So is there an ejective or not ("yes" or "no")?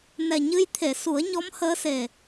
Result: no